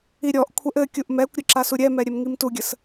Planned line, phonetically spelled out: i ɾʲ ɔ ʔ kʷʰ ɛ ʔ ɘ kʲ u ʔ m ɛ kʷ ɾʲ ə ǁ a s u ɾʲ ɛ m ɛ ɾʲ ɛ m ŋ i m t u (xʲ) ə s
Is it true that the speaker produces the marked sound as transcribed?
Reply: no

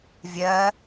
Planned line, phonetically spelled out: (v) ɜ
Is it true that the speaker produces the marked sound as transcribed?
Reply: no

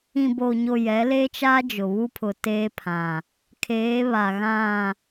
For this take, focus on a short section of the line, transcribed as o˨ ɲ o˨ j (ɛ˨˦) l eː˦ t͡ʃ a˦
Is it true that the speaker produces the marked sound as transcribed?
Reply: yes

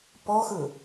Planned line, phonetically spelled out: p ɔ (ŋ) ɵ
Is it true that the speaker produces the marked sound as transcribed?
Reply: no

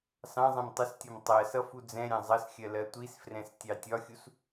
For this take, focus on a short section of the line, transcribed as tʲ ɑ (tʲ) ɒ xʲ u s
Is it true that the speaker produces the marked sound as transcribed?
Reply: yes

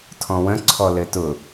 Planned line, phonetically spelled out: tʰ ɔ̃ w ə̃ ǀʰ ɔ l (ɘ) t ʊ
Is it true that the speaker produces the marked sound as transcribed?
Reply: yes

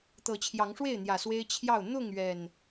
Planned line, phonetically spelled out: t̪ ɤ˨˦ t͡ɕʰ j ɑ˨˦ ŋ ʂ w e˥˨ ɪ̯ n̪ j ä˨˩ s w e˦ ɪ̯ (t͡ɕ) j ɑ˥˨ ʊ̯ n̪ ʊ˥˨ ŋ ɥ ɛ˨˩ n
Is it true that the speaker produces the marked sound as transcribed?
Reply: no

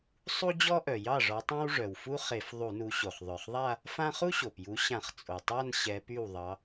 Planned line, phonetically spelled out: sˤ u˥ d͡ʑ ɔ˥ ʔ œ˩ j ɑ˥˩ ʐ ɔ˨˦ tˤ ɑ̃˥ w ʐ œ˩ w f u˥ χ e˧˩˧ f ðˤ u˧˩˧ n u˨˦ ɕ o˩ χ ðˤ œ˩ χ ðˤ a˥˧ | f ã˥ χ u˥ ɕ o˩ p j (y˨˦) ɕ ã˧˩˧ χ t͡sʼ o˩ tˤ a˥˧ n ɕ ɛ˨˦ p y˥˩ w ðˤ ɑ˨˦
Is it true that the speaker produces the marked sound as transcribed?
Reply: no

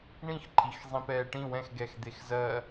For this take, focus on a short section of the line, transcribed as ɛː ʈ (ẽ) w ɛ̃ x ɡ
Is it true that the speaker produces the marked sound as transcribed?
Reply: no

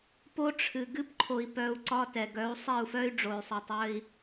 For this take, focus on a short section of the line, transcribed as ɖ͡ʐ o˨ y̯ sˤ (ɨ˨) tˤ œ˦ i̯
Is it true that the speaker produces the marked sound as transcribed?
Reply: yes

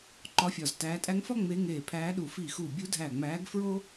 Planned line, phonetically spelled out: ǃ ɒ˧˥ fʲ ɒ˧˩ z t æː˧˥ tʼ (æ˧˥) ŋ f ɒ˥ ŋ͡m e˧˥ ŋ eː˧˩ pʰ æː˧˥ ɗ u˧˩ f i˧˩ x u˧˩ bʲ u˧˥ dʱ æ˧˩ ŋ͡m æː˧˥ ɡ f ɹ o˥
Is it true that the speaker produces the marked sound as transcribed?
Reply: yes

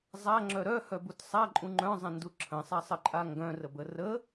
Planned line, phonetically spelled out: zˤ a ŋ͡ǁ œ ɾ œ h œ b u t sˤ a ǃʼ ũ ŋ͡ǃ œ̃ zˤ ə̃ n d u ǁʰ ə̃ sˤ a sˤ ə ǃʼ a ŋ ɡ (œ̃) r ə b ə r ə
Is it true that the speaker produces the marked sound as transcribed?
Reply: yes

